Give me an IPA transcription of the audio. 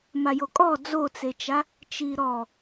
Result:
m a j o kʼ ɔ d͡z o t͡s e t͡ʃ a | t͡ʃ i ɾ ɔ

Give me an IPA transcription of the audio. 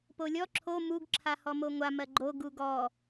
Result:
p o lʲ ɔ ǁʰ o m u ɡ ǁʰ a h ɔ m o ŋʷ a m ɜ ɡ͡ǃ o ɡ u ɡ ɔ

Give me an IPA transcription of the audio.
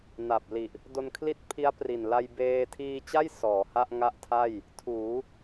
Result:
n a˨˩ p̚ l i˨˩ ʔ | d o˧ n kʰ l i˥˩ t̚ pʰ i˦˥ a̯ p r i˨˩ n l a˧ j b eː˧ tʰ iː˧ t͡ɕ a˥˩ j s ɔː˩˦ h a˥˩ ʔ ŋ a˦˥ ʔ tʰ a˥˩ j | tʰ uː˩˦

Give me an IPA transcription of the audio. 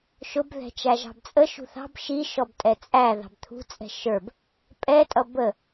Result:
ʃ ʊ b ð ɛ̤ t͡ʃ æ ʒ ɑ̤ b t͡sʼ ə ʃ ṳ θ ɑ̤ b ʃ i ʃ ɔ b tʼ ɛ t͡sʼ æ ð ɑ̤ b t̪ʰ ṳ t͡sʼ ɛ̤ ʃ ə˞ b | pʼ ɛ tʼ ʌ b ə

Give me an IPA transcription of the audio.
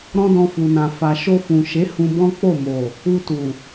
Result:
ɾ ɔ̃˦ d ɔ̃˧ f u˨ n ã˨ f a˨ ʃ o˧ f ũ˨ ʃ e˨˦ h ũ˧ b ɔ̃˦ k͡p o˦˨ m o˨ | u˧ t u˨

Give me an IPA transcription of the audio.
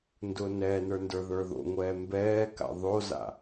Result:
n d ʊː n ɛː n ə˞ n d ə˞ ð ə˞ ð o̰ ŋʷ ɛː m b ɛː k a̰ ðˤ o z a̰

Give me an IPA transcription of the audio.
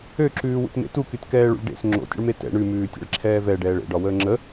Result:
ø ǁ ʉː w ṵ t m ḛ t u k y t k ɛː ɭ ṵ ɭ ɖ ḛ s ŋ͡ǁ o̰ tʲ ə̰ ɭ m e t ɛ̰ ɳ ʉ m ʉː tʲ ḛ ɭ ǁʰ ɛː v ɛ ɖ ɛː ɭ ḛ ɖ ɒ w əː ŋ͡ǁ ə

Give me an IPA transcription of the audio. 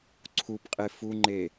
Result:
ǀʰ u p qʼ e f u ŋ͡ǃ e

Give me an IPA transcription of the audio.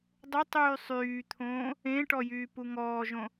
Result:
dˤ ʊ tˤ yː sˤ yː t̪ʰ õː | ẽ ʈ ɔ j yː p u ŋ ɔː ʒ õ

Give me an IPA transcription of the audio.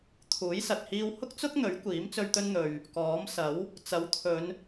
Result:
t̪ʰ uː˨˥ j s ɐ˨ t̚ h iː˧ w h ʊ˥ k̚ t͡s ʊ˥ k̚ n̪ ɵ˨˥ ɥ kʷ iː˨˥ m t͡s ɵ˧ ɥ t̪ ɵ˧ n n̪ ɵ˨ ɥ | k ɔː˨˥ m s ɐ˨˥ w | t͡s ɐ˨˥ w t̪ʰ ɵ˨˧ n

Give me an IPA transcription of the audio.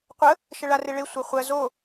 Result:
qʷ ə | ʃ ə ɭ a r e ɭ e sʷ ɜ χʷ ɜ z o

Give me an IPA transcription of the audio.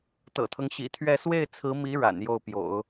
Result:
t̪ ɤ̰˨˩ t̪ʰ ɤ˦ ŋ ɕ ḭ˨˩ t̪ʰ ɥ ɛ˥˧ s w e˥˩ ɪ̯ t͡sʰ ɹ̩˧˥ m i˧˥ ɻ a̰˨˩ n j o˥˩ ʊ̯ p j o̰˨˩˦ ʊ̯

